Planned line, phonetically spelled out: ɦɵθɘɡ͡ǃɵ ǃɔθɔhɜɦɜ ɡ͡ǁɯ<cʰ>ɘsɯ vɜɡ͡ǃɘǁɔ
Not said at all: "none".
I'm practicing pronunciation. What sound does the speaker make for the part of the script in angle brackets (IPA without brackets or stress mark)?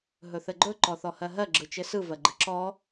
t͡ʃ